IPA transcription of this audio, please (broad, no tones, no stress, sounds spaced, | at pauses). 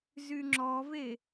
z y ŋ͡ǁ ɔ v e